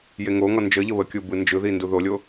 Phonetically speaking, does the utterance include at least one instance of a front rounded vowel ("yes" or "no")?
no